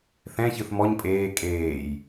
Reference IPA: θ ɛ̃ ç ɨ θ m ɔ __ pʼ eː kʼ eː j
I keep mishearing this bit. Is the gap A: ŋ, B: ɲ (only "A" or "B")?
B